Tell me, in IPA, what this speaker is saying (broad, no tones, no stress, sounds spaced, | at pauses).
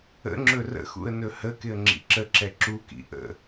ə̰ ŋ͡ǁ ɵ r ə̰ x ṵ ə̯ n ɵ h ə k ɪ ə̯ ŋ͡ǁ ḭ ǁ ə ǁ ɛ ǁ u k ḭ ʔ ə̰